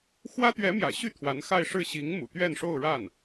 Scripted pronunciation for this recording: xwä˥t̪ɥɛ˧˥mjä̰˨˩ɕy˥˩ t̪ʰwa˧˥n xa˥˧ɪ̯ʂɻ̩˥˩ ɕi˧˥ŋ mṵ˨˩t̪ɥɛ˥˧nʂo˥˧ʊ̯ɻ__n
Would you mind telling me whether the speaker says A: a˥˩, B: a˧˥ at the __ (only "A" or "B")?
A